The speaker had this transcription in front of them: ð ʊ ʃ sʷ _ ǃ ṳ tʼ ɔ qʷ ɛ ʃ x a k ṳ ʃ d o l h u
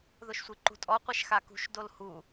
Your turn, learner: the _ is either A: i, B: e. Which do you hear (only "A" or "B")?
A